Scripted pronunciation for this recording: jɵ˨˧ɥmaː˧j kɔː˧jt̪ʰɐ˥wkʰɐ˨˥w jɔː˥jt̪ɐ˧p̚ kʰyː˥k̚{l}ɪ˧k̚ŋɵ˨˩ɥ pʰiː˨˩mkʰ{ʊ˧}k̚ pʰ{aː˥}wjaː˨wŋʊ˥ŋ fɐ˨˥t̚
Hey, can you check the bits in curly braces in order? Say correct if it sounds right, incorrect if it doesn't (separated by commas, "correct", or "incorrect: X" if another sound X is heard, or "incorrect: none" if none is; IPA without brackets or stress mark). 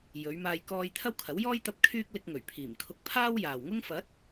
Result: correct, correct, correct